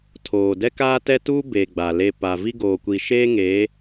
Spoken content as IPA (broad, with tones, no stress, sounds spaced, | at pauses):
tʰ oː˨ d ɛ˦ k aː˦ t ɛ˦ t uː˦ b e˨ ɡ͡b a˨ l e˦˨ p a˨ v i˦ ɡ oː˨ kʷ i˨ ʃ eː˦ ŋ e˨˦